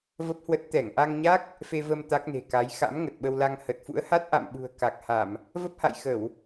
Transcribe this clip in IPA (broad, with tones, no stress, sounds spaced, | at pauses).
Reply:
v ə˦˥ p̚ h w ə˦˥ t̚ t̪ ɛ˧˩ ŋ ʔ a˧ ŋ ɲ a˦˥ k̚ | f e˧ v ə˧ m t̪ a˦˥ k̚ n e̤˨˩ k a˨˦ j x a̰˧˥ m ŋ ə˨˩ t̚ ɓ ə˧ w l a˧ ŋ h ə˨˩ t̚ f ṵ˧˥ ə̯ h a˦˥ t̚ ʔ a̰˧˨ m ɓ ṳ˨˩ ə̯ k a˨˩ k̚ h a˧˩˨ m | v ə˦˥ p̚ h a̰˧˨ j x ə˧˩˨ w